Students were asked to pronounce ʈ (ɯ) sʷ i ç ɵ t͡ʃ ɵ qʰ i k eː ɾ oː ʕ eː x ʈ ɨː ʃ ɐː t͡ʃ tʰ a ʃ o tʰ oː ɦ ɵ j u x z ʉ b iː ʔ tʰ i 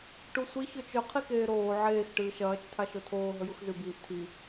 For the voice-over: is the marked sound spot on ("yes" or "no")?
no